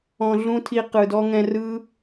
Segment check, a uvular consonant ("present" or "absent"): present